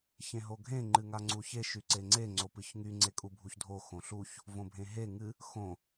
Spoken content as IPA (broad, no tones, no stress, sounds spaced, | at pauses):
ç ẽ ɦ o ɡʱ ẽ ŋ͡ǃ ɨ ŋ a ŋ͡ǀ u ç e ʃ y ǀ e ŋ͡ǀ e ŋ͡ǀ o p ɨ ç ŋ y ŋ͡ǀ e kʼ u bʱ u ç dʱ o x õ ɬ u ç | v õ bʱ ẽ ɦ e ŋ ɨ | x õ